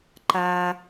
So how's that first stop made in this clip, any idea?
click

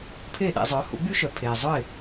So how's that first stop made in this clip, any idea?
aspirated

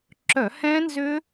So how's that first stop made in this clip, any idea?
click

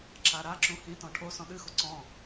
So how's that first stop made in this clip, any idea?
click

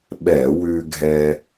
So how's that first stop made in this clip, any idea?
implosive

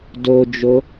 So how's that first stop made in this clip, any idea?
plain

